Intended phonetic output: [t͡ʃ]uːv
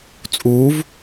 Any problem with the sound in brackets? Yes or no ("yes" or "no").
yes